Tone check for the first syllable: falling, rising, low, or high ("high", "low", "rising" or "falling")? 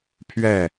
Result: falling